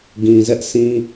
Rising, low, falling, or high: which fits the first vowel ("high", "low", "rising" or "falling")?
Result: low